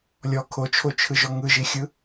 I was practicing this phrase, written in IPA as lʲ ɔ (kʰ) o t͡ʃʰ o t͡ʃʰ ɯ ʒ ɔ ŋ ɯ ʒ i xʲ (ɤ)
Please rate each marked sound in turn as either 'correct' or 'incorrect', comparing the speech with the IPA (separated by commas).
correct, incorrect